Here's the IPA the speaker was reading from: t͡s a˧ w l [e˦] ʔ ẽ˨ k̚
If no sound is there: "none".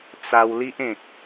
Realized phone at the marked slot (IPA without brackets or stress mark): i˦